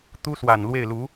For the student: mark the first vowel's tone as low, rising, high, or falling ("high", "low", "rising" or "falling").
high